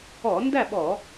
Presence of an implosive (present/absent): present